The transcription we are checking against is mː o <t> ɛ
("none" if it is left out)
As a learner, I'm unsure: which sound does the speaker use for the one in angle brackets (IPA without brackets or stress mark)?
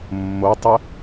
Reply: tˤ